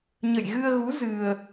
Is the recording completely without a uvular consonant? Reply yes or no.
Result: yes